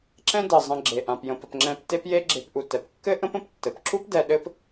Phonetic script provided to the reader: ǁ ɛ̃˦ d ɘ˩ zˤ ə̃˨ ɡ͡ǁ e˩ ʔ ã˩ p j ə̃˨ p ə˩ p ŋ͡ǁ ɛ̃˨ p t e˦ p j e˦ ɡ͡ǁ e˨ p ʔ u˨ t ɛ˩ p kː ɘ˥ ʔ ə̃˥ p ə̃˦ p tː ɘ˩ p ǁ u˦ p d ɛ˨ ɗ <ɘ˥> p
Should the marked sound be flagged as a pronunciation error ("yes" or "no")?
yes